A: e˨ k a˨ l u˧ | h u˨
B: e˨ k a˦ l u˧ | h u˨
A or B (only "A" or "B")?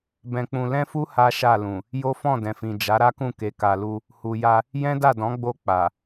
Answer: A